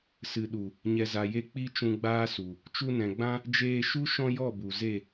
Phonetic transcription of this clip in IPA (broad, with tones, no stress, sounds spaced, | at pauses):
s ɨ˨ ɗ u˨ | ɲ ɛ˨ z a˨ j e˧ k͡p i˦ t͡ʃ ũ˧ ɡ͡b aː˦ s u˨ | t͡ʃ u˧ n ɛ̃˨ ɡ͡b ã˦ | d͡ʒ eː˧ ʃ u˦ ʃ ɔ̃˦ j ɔ˦˨ b u˨ z e˦˨